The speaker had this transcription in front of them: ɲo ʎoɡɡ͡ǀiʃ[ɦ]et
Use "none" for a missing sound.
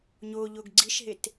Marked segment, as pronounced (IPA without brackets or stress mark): ɦ